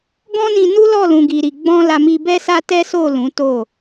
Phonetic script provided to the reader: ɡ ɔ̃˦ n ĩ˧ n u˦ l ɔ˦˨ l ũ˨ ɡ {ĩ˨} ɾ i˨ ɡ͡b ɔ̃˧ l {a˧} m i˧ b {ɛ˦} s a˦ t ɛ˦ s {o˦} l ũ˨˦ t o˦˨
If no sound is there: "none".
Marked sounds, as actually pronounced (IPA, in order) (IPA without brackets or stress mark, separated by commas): i˨, a˧, ɛ˦, o˦˨